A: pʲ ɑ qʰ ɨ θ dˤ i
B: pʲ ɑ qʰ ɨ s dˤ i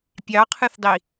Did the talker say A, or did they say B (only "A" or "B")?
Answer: A